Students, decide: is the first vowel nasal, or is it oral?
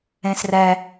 nasal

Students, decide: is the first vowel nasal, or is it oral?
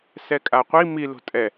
oral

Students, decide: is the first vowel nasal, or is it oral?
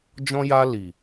nasal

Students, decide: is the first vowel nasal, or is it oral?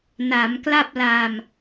oral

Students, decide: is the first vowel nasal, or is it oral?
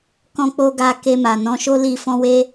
nasal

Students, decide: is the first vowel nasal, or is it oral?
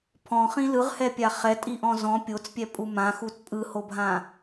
nasal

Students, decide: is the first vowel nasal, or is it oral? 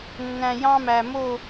nasal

